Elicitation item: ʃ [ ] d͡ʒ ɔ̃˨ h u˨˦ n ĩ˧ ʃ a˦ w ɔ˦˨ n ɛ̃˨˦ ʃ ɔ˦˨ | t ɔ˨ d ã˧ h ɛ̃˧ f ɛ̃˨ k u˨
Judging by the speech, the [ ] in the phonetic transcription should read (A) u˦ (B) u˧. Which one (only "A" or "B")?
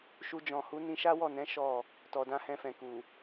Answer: B